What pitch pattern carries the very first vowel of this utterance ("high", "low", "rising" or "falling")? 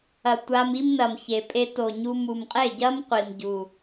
low